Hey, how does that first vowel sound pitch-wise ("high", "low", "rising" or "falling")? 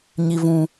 low